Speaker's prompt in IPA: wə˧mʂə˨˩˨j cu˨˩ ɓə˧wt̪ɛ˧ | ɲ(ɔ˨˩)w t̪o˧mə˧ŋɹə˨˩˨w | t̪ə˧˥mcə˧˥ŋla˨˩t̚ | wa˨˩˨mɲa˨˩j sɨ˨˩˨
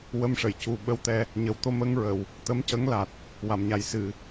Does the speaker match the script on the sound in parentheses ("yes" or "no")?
no